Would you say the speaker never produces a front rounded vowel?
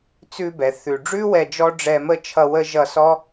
yes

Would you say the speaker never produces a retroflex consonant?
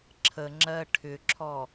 no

